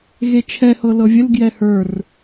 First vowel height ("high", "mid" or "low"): mid